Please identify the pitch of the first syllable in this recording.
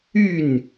falling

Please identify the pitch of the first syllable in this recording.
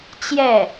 falling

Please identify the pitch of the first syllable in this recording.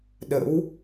rising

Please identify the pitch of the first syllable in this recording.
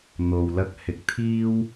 low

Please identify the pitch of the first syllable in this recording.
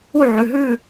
falling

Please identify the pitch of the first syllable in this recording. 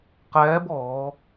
rising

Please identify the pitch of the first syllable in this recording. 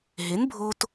rising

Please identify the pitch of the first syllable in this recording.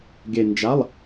low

